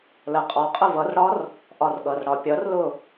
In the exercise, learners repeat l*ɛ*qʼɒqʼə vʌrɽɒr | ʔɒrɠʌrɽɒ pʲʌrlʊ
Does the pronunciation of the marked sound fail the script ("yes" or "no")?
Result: yes